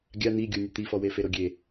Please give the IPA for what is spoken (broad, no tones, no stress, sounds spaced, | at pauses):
ɡʲ a n̪ i ɡʲ u nʲ ʊ t̪ i f ɔ w e f e ɾ o ɡʲ e